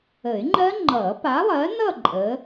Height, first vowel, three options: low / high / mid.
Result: mid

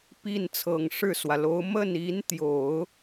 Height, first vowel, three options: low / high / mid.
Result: high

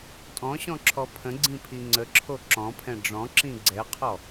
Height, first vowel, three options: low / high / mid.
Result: mid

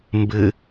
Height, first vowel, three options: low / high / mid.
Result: high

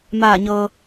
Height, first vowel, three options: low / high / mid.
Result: low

